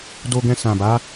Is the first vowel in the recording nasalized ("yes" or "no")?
no